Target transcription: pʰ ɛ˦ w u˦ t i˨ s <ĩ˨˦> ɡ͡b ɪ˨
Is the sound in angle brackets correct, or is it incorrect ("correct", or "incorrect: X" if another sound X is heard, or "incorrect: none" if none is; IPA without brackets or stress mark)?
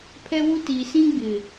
incorrect: ĩ˦